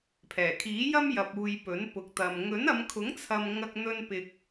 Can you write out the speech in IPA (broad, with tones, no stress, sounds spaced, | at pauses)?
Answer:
pʰ ɛː˨˩ kʰ iː˨˥ j ɐ˥ m j ɐ˨ p̚ uː˨ j p ɵ˨˥ n p ʊ˨ k̚ t̪ ɐ˨ m ŋ ɵ˨˥ n ɐ˨˧ m kʰ ʊ˨˥ ŋ t͡sʰ ɐ˨ m ŋ ɐ˧ k̚ n̪ ɵ˥ n p ɪ˧ k̚